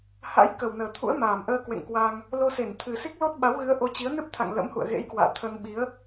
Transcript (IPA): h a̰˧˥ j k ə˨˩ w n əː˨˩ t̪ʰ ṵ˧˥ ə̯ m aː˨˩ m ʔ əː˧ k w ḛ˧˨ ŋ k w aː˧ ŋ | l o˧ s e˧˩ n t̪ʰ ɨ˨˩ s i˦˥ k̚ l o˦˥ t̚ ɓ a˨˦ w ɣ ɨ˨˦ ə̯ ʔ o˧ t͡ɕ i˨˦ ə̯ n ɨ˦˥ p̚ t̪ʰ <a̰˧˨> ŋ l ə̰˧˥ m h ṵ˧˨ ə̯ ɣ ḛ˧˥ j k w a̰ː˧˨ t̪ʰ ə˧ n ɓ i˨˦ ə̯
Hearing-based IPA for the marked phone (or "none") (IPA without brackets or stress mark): a̰˧˨